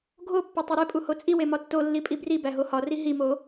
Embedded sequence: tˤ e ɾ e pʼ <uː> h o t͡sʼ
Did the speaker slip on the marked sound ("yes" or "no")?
yes